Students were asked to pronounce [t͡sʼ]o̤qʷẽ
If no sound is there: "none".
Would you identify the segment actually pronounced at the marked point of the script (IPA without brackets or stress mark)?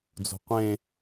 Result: d͡z